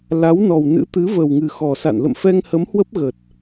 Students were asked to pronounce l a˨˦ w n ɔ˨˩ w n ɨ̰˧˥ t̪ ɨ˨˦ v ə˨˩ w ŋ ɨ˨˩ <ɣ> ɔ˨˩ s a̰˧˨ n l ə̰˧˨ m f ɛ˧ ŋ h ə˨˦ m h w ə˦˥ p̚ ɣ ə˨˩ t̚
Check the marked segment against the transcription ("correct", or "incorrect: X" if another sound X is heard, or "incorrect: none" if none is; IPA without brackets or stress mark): incorrect: x